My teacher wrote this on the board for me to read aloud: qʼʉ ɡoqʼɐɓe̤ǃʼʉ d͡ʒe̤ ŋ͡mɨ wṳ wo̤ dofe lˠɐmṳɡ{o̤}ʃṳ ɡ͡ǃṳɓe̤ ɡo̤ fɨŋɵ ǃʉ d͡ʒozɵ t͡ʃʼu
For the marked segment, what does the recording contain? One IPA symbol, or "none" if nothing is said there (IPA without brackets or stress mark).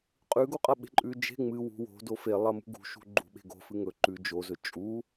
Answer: ṳ